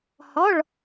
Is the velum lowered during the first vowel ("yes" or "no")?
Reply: no